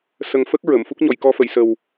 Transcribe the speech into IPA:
s ə˨˩ ŋ f ə˦˥ k̚ ɹ ə˨˩˨ m f u˦˥ k̚ ɲ ɔ˨˩˨ j k ɔ˧ f ə˨˩˨ j s ə˨˩ w

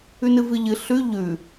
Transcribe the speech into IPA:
ʉ n ɨ v ɨ ʎ ɨ ɬ ʉ ʎ ʉ

